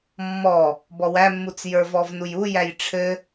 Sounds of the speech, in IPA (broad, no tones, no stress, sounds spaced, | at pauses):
mː ɔ | b ɔ w æ mː u t͡s j ə˞ v ɔ v n u j u j æ j ʈ͡ʂʰ ɘ